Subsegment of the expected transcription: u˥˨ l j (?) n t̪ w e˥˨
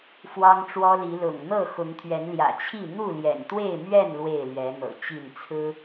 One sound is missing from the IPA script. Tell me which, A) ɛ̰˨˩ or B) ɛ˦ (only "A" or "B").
A